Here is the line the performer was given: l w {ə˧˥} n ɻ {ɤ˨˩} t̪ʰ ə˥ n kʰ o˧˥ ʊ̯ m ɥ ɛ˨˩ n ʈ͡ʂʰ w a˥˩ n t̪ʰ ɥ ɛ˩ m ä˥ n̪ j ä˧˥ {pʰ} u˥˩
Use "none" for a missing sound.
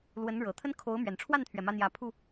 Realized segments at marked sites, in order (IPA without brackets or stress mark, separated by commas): ə˧˥, ɤ˨˩, pʰ